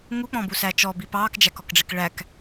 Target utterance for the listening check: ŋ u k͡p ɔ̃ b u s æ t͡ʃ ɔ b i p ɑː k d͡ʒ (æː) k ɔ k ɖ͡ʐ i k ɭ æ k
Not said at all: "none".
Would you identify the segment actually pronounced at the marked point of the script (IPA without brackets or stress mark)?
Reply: æ